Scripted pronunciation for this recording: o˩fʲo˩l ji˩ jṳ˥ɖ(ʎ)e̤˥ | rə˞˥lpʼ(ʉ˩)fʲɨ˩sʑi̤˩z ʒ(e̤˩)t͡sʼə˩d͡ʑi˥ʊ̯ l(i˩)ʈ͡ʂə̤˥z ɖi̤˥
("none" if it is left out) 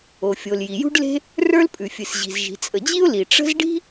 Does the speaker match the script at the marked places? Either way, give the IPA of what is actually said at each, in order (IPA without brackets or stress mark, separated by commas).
l, ʉ˩, i̤˩, i˩